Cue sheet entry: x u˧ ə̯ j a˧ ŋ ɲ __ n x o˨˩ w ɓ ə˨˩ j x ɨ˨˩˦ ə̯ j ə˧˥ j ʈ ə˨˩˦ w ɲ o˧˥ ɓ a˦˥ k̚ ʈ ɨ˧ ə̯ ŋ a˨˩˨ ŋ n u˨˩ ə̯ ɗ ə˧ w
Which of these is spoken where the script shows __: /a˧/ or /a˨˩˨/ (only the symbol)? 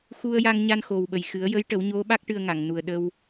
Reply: a˧